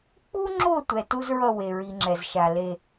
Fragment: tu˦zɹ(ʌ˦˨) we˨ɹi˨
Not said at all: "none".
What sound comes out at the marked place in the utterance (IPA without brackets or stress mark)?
ʌ˦˨